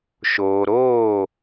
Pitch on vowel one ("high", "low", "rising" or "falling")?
low